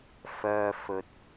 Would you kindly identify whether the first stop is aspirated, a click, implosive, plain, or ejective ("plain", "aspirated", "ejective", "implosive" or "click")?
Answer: plain